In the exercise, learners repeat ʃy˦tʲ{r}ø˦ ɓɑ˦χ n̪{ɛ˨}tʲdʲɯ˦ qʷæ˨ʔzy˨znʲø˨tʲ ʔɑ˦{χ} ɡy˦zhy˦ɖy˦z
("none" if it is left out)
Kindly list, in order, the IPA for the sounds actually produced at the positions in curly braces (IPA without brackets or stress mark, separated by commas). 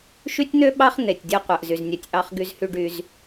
n̪, e˨, χ